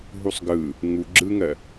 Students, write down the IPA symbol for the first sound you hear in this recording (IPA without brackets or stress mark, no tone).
ɦ